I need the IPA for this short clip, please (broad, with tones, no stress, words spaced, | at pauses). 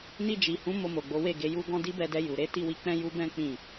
ni˧d͡ʒi˨hũ˨˦ mo˧mo˨ɡ͡bo˨˦we˦˨ ɡe˨ju˧ɡɔ̃˧ di˦bɛ˧dɛ˧ ju˨ ɾe˨˦ti˦˨wi˧ k͡pɛ̃˦ju˦bɛ̃˦ k͡pĩ˦˨